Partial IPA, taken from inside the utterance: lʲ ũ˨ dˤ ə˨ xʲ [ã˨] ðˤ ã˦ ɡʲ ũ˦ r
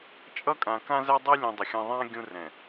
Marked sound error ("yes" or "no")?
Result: yes